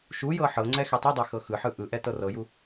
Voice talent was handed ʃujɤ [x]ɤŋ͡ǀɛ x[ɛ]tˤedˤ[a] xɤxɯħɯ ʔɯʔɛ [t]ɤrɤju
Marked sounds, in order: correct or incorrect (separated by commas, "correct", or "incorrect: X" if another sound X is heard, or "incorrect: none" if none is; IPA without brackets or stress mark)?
incorrect: ħ, correct, correct, correct